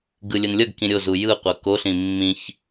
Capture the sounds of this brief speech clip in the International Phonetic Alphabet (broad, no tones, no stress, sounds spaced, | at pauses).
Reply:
ɡ ɯ lʲ ə n lʲ ʌ ɡ k ĩ ɾʲ o z u j ɯ qʷ ʌ k o ɬ ĩ mː ĩ ç